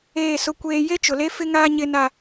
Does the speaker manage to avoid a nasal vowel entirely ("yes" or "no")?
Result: yes